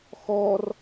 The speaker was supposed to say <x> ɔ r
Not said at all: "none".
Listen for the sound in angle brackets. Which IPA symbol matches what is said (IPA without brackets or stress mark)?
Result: x